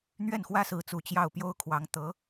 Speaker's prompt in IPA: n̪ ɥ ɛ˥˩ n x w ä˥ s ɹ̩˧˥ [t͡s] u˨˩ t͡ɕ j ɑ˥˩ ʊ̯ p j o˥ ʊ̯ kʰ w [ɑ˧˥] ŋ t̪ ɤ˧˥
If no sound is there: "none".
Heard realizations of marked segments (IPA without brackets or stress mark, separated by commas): t͡s, ɑ˧˥